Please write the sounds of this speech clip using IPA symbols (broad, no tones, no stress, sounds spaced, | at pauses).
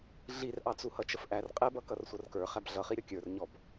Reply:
ɮ i r ʔ ɑ t͡s u h ʌ t͡ʃ ə f ʔ æ r qʼ ɛ b ʌ k ʌ r sʷ ʌ r k ə˞ χ æ b ɮ ʌ χ i ɾʲ ɔ kʲ ə˞ r ɲ ɔ b